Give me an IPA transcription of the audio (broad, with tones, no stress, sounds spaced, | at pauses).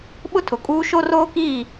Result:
ɓ ʊ˦ tʰ ʊ˨ kʼ uː˦ ʃ o˦ r oː˦ k iː˦˨